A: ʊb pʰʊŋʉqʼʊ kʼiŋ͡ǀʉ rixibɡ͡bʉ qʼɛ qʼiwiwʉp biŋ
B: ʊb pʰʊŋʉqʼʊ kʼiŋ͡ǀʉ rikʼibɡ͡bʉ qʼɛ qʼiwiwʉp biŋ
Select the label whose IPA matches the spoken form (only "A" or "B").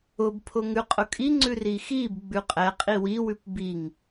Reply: A